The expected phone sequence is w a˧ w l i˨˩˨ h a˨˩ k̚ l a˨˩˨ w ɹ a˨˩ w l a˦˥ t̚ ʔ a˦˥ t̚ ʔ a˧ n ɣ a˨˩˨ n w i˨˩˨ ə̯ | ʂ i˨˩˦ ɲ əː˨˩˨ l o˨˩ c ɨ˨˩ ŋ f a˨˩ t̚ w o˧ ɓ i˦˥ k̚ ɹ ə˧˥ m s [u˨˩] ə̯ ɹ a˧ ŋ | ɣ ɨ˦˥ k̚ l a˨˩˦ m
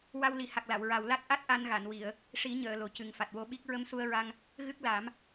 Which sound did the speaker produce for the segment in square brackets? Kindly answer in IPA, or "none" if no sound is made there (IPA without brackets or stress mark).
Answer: u˧